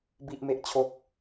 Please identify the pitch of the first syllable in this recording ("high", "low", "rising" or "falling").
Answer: high